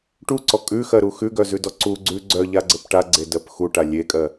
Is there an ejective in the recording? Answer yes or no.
yes